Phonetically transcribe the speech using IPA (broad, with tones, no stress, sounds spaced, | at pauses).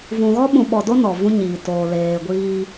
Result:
v ũ˨ ɣ ɔ˦ ɓ ũ˨ ɓ ɔ˨ d o˦ n ɔ˨ v ũ˦ ɲ iː˨ t oː˨ l eː˨ ɡʷ iː˦